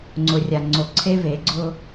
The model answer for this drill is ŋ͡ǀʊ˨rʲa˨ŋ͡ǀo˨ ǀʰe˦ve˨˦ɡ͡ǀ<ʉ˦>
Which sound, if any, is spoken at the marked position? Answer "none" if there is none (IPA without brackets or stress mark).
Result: ʊ˦